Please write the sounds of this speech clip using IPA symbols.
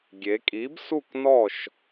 ɡʲ e˩˧ kʼ i˨˥ b s u˦˨ k n ɔ˦˨ ʃ

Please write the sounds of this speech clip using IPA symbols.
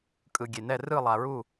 kʼ ɯ˧ ɡʲ e˧ n ɛ˥˧ r ɯ˥˧ lˠ a˧ ɹ u˥˧

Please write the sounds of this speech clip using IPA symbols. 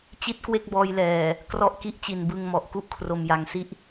t͡ɕ i˥˩ t̚ k w e˥˩ k̚ b ɔː˧ j l ɛː˨˩ | k r ɔ˦˥ ʔ k i˦˥ ʔ t͡ɕ i˨˩ n b ɯ˧ ŋ m ɔ˨˩ ʔ k u˥˩ ʔ kʰ r o˧ m j a˧ ŋ s i˦˥ ʔ

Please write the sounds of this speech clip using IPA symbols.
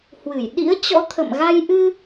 h w ɨ˧˩ j ɗ ḭ˧˥ ə̯ t͡ɕ ɔ̰˧˥ t̪ʰ ə̰˧˨ m ɣ a˧ j ʔ ɨ˧

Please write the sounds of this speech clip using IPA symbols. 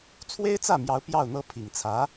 t͡sʰ w e˥ ɪ̯ t͡s ä˥˩ m j ɑ˧˥ ʊ̯ p j ɑ˥˩ ʊ̯ n̪ ɤ˥ pʰ i˨˩ ŋ t͡sʰ ä˧˥

